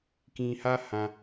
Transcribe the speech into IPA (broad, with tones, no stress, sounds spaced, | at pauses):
k ĩ˧ h a˦ h ã˦